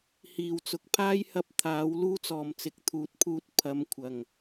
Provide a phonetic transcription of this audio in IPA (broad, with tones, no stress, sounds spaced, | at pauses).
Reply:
h iː˨˩ w t͡s ʊ˨ k̚ pʰ aː˥ j h ɐ˧ p̚ t̪ʰ aː˨˥ w l uː˥ t͡s ɔː˨ m t͡s ɪ˨ k̚ t̪ʰ uː˨˥ t̚ pʰ uː˧ t̚ pʰ ɐ˨˧ m kʷʰ ɐ˨˩ ŋ